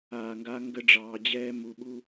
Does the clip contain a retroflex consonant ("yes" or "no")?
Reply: yes